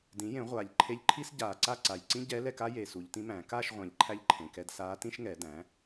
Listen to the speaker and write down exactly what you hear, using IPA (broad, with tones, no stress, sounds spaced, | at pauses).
d ĩ˩˥ j ẽ˨˩˦ ʁʷ aː˨˩ ʎ ǃʰ e˧˥ ʎ ǃʰ i˥ s ɟ aː˨˩ ǀ a˥˨ ǀ a˨˩ j ǀ ĩ˥ ɟ ɛ˧˥ l ɛ˥˨ k a˥ j e˨˩ s u˨˩˦ ʎ t ĩ˧˥ m æ̃ː˨˩˦ k aː˥˨ ʃ ʁʷ æ̃˨˩ ʎ ǃʰ æ˥ ʎ ǃʰ ẽ˨˩ k ɛ˥˨ d s aː˧˥ t ĩ˥ ʃ ŋ ɛ˨˩˦ d æ̃˩˥